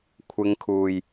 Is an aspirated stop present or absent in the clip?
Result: present